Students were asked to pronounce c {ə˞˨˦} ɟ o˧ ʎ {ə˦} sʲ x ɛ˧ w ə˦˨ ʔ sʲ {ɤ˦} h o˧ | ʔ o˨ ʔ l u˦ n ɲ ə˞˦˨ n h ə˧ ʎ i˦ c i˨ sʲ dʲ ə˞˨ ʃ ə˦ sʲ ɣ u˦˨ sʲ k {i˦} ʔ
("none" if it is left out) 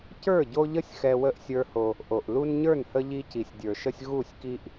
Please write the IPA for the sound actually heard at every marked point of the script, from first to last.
ə˞˦˨, ə˦, ə˞˦, i˦

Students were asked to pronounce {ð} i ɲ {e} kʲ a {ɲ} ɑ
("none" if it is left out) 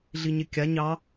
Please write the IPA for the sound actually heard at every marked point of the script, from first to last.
ɮ, e, ɲ

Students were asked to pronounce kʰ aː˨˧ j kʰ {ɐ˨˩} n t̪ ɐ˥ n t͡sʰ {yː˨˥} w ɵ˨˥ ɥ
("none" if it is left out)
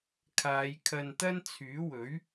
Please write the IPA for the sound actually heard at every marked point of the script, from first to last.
ɐ˧, yː˨˥

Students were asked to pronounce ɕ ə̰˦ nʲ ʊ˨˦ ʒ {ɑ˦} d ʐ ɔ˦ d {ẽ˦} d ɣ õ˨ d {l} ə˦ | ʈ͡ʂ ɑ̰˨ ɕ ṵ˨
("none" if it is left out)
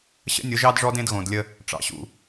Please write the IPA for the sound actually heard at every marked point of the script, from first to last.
ɑ˦, ẽ˦, lʲ

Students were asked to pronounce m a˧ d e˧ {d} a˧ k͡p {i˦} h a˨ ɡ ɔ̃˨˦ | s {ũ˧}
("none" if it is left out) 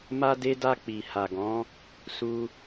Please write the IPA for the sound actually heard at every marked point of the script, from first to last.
d, i˨, u˧

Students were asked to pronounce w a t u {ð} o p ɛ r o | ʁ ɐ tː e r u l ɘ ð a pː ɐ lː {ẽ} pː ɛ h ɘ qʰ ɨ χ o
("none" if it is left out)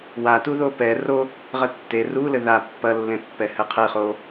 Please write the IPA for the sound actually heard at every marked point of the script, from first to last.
ð, ẽ

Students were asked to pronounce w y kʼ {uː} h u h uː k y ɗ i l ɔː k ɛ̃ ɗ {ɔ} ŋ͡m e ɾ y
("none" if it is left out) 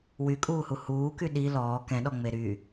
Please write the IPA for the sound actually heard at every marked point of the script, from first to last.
uː, ɔ

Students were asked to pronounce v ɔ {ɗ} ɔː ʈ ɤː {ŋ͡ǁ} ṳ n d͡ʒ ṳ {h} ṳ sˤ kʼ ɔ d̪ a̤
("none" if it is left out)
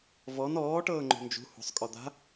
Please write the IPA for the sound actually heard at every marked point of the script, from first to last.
n, ŋ͡ǃ, h

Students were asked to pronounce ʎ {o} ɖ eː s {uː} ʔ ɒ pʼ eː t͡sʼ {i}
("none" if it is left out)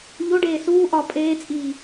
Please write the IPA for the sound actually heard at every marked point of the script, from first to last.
o, uː, iː

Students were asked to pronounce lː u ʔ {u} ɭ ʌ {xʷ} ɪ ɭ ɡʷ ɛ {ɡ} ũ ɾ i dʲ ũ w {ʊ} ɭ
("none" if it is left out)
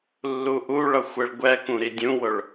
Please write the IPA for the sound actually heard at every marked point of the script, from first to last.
u, xʷ, k, ʊ

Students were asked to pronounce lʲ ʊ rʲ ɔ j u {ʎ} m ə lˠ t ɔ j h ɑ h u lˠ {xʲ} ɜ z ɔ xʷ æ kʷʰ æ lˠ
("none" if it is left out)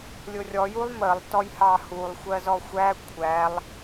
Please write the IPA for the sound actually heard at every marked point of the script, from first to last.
lˠ, xʷ

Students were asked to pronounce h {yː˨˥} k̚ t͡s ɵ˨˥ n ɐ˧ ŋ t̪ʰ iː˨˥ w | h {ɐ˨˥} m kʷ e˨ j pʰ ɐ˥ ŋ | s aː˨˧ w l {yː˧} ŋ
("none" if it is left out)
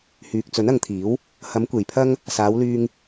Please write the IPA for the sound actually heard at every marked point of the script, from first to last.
yː˨, ɐ˨˥, yː˧

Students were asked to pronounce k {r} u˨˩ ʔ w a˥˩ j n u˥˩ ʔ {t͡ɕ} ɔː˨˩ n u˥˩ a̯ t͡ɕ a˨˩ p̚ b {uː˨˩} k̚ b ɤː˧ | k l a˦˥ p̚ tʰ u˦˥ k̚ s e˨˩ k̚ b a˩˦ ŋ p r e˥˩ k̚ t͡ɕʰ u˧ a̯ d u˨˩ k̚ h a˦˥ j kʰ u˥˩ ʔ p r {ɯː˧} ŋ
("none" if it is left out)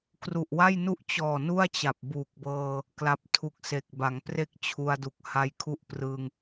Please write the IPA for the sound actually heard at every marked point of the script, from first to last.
r, t͡ɕ, uː˨˩, ɯː˧

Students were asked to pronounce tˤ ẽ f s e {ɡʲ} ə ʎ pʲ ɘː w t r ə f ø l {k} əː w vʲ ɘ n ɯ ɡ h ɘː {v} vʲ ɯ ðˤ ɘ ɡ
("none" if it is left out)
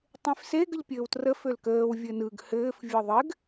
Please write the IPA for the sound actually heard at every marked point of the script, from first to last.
ɡ, k, f

